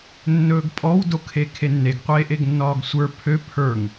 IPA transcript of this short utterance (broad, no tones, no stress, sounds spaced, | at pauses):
nː ɵː ɡ pʼ ɔ w d o kʰ e kʰ e nː e ɡ qʷ eː ʔ e ɡ nː ɒː ɡ sʷ ə˞ pʰ ø pʰ ə˞ ŋ